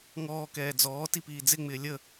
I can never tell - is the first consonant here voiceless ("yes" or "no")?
no